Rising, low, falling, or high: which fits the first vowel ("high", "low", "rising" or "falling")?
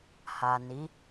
low